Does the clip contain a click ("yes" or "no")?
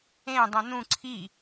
yes